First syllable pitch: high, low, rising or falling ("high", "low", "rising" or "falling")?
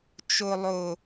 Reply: high